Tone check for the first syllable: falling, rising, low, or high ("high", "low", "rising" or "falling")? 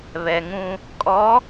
low